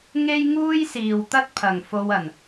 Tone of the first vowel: high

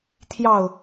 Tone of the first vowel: falling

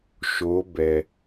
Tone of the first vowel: rising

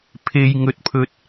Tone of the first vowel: high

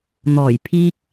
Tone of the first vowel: low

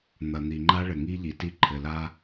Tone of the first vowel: low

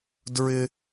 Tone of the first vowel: high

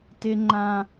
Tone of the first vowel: high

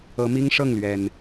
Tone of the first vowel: rising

